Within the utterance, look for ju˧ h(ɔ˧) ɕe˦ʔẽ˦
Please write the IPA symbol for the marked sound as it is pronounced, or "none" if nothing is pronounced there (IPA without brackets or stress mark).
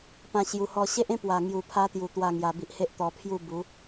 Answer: ɔ˧